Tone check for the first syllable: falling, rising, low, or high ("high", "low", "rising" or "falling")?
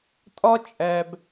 high